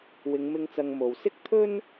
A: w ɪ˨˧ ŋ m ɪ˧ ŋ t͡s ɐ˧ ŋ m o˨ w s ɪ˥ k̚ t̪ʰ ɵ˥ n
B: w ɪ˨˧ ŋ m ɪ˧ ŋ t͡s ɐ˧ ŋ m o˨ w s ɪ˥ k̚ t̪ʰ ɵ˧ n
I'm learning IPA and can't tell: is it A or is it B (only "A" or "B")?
A